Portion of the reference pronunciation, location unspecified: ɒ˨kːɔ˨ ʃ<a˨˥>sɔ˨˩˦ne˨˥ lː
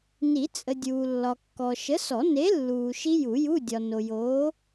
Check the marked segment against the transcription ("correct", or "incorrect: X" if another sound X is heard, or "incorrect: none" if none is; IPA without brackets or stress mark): incorrect: ə˨˥